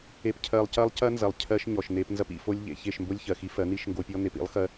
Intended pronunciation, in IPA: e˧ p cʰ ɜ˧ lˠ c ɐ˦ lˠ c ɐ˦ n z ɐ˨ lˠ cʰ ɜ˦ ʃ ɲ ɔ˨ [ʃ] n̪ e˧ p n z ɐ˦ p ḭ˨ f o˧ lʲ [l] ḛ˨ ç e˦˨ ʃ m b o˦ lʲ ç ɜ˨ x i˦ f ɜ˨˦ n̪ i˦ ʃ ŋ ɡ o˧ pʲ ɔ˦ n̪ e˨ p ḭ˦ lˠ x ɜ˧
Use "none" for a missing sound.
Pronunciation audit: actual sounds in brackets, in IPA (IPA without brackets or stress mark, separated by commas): ʃ, ʎ